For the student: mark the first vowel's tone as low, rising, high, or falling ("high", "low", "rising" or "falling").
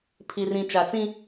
low